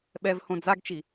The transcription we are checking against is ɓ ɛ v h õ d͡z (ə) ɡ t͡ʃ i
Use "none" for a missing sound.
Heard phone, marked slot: a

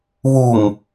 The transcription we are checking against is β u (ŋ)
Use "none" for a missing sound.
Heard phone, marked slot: ŋ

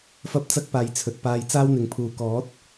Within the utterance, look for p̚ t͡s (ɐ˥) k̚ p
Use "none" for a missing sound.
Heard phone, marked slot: ɐ˥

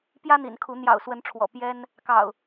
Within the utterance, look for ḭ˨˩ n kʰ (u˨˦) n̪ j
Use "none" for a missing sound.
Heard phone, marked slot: u˨˦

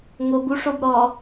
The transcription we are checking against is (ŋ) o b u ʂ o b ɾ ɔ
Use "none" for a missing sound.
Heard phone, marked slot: ŋ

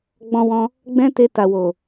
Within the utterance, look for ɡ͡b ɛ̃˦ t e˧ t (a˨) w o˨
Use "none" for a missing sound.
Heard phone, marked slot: a˨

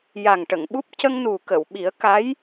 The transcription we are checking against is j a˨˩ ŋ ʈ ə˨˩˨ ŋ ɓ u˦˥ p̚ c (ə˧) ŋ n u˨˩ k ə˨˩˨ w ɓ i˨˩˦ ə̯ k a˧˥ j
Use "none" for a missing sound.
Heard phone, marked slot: ə˧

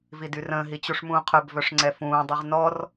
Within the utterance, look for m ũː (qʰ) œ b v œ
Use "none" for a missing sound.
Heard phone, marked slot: qʰ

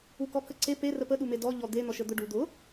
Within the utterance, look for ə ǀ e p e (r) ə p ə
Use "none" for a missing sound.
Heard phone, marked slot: r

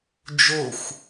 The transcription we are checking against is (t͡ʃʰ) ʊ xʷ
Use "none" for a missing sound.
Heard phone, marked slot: d͡ʒ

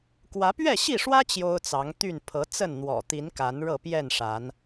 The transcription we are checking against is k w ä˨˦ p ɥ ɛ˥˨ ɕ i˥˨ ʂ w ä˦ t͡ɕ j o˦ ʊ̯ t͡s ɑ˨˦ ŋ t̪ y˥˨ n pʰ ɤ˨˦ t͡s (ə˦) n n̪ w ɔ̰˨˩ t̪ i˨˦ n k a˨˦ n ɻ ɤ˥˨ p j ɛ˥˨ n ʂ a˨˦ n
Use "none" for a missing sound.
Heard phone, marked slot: ə˥˨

